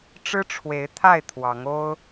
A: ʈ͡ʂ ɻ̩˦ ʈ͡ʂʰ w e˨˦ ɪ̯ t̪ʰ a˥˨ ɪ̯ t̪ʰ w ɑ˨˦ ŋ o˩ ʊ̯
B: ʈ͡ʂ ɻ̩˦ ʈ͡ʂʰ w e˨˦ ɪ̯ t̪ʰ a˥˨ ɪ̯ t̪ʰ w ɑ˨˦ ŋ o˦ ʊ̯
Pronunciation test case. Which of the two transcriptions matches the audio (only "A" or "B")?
B